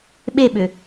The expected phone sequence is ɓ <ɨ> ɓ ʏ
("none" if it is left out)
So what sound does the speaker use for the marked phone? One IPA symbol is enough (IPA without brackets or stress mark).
e